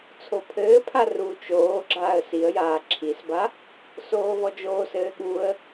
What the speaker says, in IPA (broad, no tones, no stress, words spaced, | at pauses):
t͡sʰopʰɘːpʰa ru t͡ʃoː ɡ͡ǁaːə̯siə̯jaː ǁʰisba | soːvɔd͡ʒoːsɘː ɠuə̯